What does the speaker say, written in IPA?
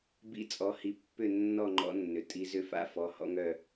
b ḭ˦˨ t͡sʼ ɔ˨˦ h i˨˦ pː ʏ˦˨ nː ɔ˦˨ ŋ͡ǃ ɔ̰˨˩˦ nː ʏ˩ tʼ i˨˦ z ʏ˦ f a̰˦ f ɔ˩˧˩ h ɔ̰˦ ŋ œ˦˨

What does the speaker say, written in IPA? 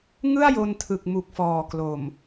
ŋ ɯ˥˩ a̯ j o˧ n tʰ ɯ˨˩ k̚ m u˨˩ k̚ f ɔː˨˩ k l o˨˩ m

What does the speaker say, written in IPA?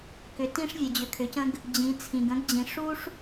k ʏ˩ t ĩ˧ ʂ vʲ ə˩ d͡ʑ ʏ˩ kʰ ʏ˩ c ə̃˧ ɡ | d͡ʑ ĩ˩˧ t͡sʰ ĩ˩ ɡ ə̃˧˥ ɡ d͡ʑ ĩ˩˧ ʂ u˥ ʂ

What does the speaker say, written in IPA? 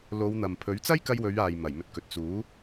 l o˨˧ w n̪ ɐ˨ m pʰ ɵ˨˥ ɥ t͡s ɐ˥ j k ɐ˧ j w ɵ˨˧ ɥ aː˨ j m ɐ˨˩ j m ɵ˨ t̚ k ɵ˨ t̚ t͡s uː˨˥

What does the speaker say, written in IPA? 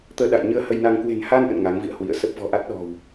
t̪ əː˧ ɗ a̰˧˨ j ɲ ɨ˧ ə̯ h ə˧ j n a˧ ŋ k w e̤˨˩ n h a˧ n ʔ ə̰˧˨ n ŋ a˨˦ ŋ v ḭ˧˨ ə̯ h w ḭ˧˨ ə̯ s ə˦˥ p̚ v ɔ̤˨˩ ʔ a˦˥ t̚ ɗ ɔ̤˨˩ w

